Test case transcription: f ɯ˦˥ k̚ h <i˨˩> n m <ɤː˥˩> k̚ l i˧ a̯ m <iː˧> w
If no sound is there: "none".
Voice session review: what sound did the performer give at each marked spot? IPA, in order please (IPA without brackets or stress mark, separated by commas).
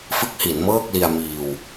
i˩˦, ɤː˥˩, iː˧